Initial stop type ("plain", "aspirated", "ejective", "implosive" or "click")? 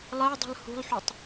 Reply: plain